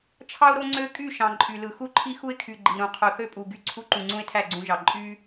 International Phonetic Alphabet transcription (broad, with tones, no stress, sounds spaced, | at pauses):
t͡ʃʰ ɑ˦ ʊ̯ ɾ o˦ ŋ͡ǀ ø˦ kʼ y˦˨ ʃ ɑ̃˨ ǃʼ y˨ l ɯ˨ x u˦ ǃʰ i˦ x u˦ ɪ̯ kʰ y˨ ɡ͡ǃ i˨ ɾ ũ˨ qʰ o˨ θ ø˦ pʼ u˨ ɡ y˦ ǀʰ u˦ ǃ ũ˨ ŋ͡ǀ ũ˦ ɪ̯ tʰ æ˦˨ ɡ͡ǀ ũ˦ ʒ ɑ˨ ǃʼ y˦